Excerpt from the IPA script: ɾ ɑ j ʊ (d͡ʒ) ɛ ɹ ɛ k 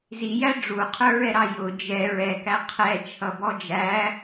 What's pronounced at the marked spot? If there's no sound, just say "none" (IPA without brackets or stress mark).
d͡ʒ